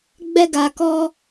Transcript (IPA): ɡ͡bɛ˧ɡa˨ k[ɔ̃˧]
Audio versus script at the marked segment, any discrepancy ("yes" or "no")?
yes